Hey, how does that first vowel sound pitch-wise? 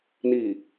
low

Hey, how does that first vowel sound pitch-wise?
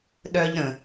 high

